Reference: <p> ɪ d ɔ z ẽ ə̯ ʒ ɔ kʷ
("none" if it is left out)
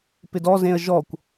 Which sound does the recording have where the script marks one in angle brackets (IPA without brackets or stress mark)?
p